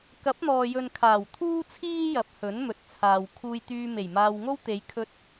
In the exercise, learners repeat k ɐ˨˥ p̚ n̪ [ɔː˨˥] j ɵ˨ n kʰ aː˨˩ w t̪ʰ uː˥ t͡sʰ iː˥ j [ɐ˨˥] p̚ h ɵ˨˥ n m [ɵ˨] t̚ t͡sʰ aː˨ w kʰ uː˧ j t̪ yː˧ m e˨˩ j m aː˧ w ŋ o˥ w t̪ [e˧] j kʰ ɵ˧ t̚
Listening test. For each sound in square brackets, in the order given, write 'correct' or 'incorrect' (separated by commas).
incorrect, correct, correct, incorrect